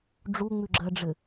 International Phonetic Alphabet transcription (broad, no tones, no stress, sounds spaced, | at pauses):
ɖ͡ʐ u ŋ͡m ʉ ɡ͡ǁ ɜ ɖ͡ʐ ɘ